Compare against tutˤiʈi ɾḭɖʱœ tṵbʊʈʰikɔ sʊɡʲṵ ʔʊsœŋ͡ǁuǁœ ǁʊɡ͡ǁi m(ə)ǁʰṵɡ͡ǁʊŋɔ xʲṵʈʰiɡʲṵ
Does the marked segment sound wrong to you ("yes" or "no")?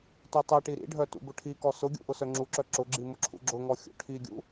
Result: yes